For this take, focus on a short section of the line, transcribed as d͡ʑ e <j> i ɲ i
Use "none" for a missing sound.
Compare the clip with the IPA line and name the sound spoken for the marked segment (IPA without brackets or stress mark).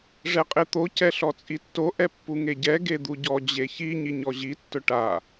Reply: ç